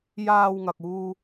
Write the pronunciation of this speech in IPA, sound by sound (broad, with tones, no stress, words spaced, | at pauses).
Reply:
jaː˧wŋɐ˨k̚ uː˧